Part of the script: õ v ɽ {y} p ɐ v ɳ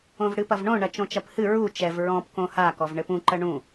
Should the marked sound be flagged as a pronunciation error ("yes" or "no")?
yes